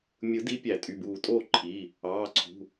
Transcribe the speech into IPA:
mʲ ɯ˨˩˦ d i˨˦ pʲ æ˨˩˦ tʼ y˩˧˩ b uː˧˩ tʼ oː˥˨ ǃʰ i˩˧˩ | ɑː˩˧˩ ǀʰ ṳ˩˧˩

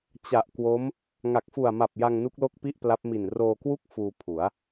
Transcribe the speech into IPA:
t͡ɕ a˨˩ ʔ k w o˦˥ m | ŋ a˨˩ k̚ f u˨˩ a̯ m a˨˩ p̚ j a˧ ŋ n u˦˥ k̚ l o˥˩ k̚ p i˥˩ ʔ p l a˦˥ p̚ m i˨˩ n r oː˧ k w u˥˩ k̚ f uː˧ pʰ u˩˦ a̯

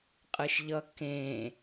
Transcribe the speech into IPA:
qʼ ɯ ʃ ʎ ʌ k ẽ

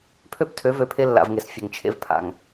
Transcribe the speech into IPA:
pʰ ø˦˨ p tʰ ø˨˦ v ø˨ pʰ e˦ lː a̰˨ v ŋ e˨ s fʲ ə˨ ŋ t͡ʃʰ ḛ˦ v pʰ a̰˨ ŋ

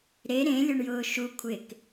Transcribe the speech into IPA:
ɾ e ɾ ẽ lʲ o ɳ j ʊː ʃ u kʷʰ ɪ k

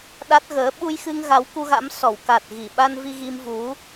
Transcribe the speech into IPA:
ɗ a˦˥ t̚ ɣ əː˨˦ ɓ u˧ j x ɨ˧ ŋ ɣ a˨˦ w k u˧ ɣ a̰˧˥ m s ɔ˧˩ w k a˨˩ t̚ ɣ i˧˩ ɓ a˧ n v i˧ ɣ i˧ m v u˨˦

